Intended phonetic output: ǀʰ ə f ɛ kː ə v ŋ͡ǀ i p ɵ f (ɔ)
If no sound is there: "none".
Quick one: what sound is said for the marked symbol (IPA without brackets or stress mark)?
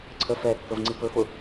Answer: ʊ